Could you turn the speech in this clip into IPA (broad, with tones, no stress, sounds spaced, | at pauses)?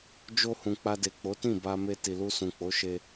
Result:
d͡ʒ o˧ h ũ˨ k͡p a˧ d e˨ k͡p o˨˦ t ĩ˦˨ b a˧ m e˧ t i˨ l u˧ s ũ˨ k͡p o˨˦ ʃ e˧